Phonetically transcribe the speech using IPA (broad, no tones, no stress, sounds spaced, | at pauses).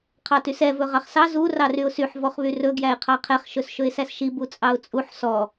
qʰ ɑ t y s ɛ v ɵ ʁ ɑ χ s ɑ z u r ɑ r y ʊ̯ s y ħ v ɔ χ β y r ɵ ɡ j æ ɪ̯ qʰ ɑ qʰ ɛ χ ʃ ɵ s ʃ ɵ ɪ̯ s æ s ʃ i b u t͡sʼ ɑ ʊ̯ t͡sʼ u ħ s ɔ